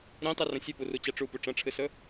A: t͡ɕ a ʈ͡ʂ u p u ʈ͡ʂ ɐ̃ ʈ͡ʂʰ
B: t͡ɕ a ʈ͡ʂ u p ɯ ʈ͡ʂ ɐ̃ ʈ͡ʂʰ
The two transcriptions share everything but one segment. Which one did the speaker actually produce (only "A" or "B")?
A